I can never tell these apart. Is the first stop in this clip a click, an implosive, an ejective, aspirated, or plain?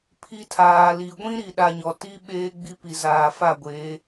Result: aspirated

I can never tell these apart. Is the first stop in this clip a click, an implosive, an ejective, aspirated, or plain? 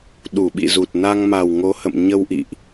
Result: implosive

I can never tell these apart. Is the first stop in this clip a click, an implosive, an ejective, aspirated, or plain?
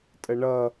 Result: ejective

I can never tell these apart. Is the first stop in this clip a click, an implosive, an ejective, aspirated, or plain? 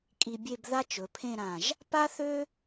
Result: ejective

